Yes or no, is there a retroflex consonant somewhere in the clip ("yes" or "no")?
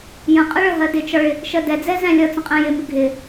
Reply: yes